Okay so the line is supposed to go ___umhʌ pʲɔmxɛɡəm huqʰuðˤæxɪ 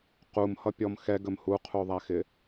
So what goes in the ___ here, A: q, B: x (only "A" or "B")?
A